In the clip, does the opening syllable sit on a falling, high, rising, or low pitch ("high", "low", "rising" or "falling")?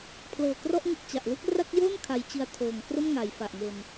low